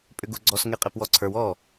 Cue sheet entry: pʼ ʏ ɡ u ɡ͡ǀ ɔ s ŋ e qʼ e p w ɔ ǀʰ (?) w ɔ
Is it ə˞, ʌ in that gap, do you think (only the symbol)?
ə˞